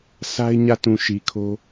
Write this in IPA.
sʰ a˦ ɪ̯ ɲ ä˦˨ t ũ˨ ʃ i˨ kʰ o˦

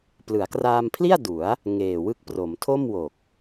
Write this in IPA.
p l ɯ˩˦ a̯ k r aː˧ m pʰ l i˥˩ a̯ d u˩˦ a̯ | ŋ eː˨˩ w ɯ˥˩ k̚ p r o˩˦ m tʰ o˥˩ m w o˨˩ k̚

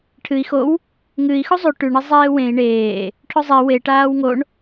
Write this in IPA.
ʈʰ ɨ i̯ x o w | ŋ ɨ i̯ x u zˤ ʉ ʈ ʉ ɳ i zˤ eː w ẽ i̯ ɳ eː | ʈʰ ɵ zˤ i w e ʈ aː w ŋ o ɳ

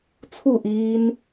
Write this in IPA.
t͡sʰ u ʔ iː n

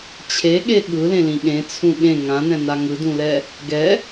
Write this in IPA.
t͡ɕʰ e ɠ e ɠ ɯ l ẽ l ĩ ɠ ẽ t͡sʰ ũ ɠ ẽ ŋ ã n ɛ̃ n a ŋ ɯ d ũ l ɛ | ɡ ɛ

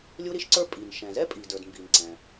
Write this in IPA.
lʲ u˥ ɾ i˥ ʃ ǀ ə˞˥ pʼ i˩ n ʃ ɛ̃˩ z ɛ˥ pʼ i˩ d ə˞˩ d m b i˩ n ǀ ɛ̃˩

